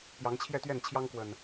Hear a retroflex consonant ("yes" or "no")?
no